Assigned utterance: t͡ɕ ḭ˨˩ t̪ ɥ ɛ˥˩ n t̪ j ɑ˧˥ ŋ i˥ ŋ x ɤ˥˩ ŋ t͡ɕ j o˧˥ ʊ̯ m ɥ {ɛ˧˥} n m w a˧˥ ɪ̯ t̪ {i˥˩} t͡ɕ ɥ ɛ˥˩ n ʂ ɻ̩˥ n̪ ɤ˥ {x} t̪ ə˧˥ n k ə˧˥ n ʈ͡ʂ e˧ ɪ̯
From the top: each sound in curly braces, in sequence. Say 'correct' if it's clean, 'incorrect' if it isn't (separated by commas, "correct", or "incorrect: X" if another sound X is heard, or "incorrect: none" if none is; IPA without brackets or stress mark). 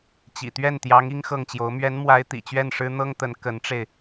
correct, incorrect: ḭ˨˩, incorrect: ŋ